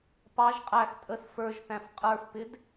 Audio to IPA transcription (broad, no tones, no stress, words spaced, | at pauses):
pɑʒ qʼæx tʼəs fə˞ʒθæ̃f qʼə˞fpɪd